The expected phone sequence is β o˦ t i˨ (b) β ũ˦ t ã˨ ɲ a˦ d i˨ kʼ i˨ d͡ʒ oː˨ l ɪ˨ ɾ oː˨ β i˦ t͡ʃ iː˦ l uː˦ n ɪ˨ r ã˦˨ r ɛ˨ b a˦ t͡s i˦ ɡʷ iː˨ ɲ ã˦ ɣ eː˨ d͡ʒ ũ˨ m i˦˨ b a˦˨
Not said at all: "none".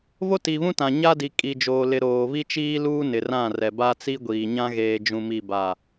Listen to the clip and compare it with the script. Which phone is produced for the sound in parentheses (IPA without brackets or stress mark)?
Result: none